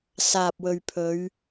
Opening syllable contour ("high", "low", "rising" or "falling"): low